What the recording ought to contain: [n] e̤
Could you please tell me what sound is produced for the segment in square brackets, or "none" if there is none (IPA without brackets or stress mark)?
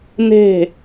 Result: n